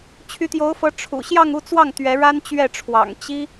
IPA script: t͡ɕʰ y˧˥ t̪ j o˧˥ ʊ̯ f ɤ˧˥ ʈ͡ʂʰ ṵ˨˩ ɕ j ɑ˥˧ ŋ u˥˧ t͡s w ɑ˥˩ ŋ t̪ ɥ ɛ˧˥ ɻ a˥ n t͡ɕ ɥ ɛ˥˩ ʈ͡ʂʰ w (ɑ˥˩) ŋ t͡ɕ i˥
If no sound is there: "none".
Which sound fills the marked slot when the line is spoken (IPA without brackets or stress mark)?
ɑ̰˨˩